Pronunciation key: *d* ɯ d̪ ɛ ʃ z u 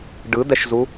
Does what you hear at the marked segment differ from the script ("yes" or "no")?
yes